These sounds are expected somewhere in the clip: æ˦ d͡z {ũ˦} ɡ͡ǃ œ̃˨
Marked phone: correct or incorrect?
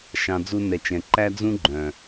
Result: correct